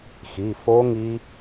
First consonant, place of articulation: velar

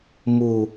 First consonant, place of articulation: labial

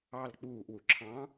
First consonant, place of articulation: alveolar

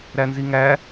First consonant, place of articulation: alveolar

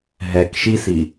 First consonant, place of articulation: glottal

